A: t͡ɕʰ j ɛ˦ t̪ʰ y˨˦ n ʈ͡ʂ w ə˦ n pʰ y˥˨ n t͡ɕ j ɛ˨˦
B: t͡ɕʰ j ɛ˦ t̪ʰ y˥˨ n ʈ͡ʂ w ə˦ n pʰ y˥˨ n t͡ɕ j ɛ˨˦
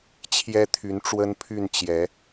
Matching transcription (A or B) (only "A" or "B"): A